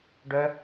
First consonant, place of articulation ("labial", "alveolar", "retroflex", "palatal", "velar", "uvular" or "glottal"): retroflex